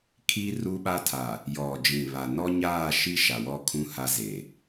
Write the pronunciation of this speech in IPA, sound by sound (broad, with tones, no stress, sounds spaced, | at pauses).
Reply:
kʰ i˦ r u˦ ɓ a˦ tʰ a˨ | j ɔ˨ d͡ʒ ĩ˨ β a˨ n ɔ˦ ɲ aː˦˨ ʃ i˦ ʃ a˨ w ɔ˦ kʰ ũ˦ h a˦ z e˨